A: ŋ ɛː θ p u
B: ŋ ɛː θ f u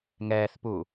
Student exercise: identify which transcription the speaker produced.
A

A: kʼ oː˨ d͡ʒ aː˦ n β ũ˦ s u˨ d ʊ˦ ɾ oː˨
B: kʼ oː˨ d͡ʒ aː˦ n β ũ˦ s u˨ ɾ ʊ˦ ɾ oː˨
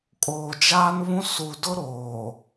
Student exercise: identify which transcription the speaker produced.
A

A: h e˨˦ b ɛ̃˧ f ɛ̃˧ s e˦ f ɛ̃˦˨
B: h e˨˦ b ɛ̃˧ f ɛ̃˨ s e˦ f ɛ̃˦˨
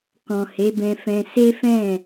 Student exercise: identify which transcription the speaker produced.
A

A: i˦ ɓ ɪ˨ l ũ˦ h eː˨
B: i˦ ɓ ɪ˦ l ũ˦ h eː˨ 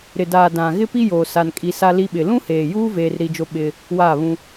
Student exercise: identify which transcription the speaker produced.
A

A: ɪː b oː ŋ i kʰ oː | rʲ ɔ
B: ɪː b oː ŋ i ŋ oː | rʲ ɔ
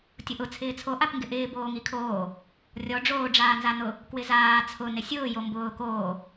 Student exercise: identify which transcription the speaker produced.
A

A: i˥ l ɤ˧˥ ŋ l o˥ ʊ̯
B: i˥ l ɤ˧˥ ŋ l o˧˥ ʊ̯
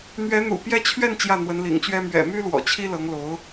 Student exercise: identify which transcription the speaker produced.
B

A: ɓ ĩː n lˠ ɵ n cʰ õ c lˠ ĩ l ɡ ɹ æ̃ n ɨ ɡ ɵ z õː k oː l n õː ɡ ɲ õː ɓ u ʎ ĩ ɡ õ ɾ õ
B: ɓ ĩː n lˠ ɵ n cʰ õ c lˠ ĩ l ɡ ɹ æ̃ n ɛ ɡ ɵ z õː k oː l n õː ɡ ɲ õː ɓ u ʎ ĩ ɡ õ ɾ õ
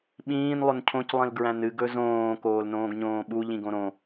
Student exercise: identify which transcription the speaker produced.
A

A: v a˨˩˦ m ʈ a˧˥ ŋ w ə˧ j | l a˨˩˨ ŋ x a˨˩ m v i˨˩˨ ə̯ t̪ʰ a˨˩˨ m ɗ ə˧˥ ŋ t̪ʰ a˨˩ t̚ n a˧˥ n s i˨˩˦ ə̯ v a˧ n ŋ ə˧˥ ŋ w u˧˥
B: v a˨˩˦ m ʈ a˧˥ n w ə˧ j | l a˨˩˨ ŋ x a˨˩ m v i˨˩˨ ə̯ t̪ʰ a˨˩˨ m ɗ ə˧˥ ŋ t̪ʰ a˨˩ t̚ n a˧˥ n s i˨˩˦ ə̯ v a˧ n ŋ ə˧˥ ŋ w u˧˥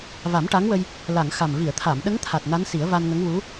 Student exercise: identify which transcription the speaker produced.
A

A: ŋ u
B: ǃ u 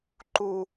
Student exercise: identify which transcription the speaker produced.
B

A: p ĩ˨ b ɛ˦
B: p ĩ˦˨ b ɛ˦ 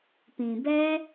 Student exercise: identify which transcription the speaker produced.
A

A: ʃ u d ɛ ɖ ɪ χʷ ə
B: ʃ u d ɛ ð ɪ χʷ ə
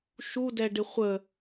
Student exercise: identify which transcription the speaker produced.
A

